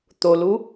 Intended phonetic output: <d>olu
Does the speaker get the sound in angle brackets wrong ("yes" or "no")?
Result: yes